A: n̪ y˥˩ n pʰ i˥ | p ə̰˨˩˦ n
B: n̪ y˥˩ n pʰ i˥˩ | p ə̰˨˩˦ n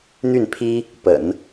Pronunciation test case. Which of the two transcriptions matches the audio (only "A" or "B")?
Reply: A